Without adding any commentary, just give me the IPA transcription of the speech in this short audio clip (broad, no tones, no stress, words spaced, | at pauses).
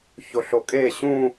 çoɬokʼeː ɕũ